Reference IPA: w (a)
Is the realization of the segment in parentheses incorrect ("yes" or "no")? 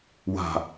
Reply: yes